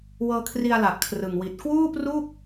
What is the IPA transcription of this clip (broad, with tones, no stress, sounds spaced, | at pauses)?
w ɤː˧ kʰ r i˧ a̯ l a˨˩ ʔ kʰ r ɯ˨˩ ŋ w i˨˩ t̚ k w uː˥˩ p r u˥˩ k̚